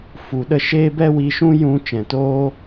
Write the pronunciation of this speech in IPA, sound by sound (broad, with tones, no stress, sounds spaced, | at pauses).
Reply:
f u˨˦ ɗ ə˦ ʃ eː˦ b ɛ˦ w i˧ ʃ ũ˦ j ũ˦ t͡ʃ ɛ̃˨ t oː˦